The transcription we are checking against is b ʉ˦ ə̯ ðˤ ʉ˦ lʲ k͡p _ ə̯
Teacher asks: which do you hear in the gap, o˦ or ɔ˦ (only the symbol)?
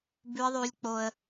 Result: o˦